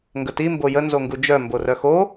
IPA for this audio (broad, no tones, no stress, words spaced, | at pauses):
ŋɡəti mbojə nzoŋɡud͡ʒœ mborœxo